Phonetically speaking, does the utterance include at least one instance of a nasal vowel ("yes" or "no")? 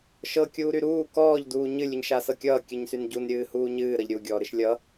no